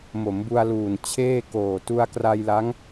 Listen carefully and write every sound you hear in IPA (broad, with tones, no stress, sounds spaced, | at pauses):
m o˩˦ m b u˧ a̯ l uː˨˩ n t͡ɕʰ eː˥˩ k oː˨˩ t u˧ a̯ k r a˧ j l a˦˥ ŋ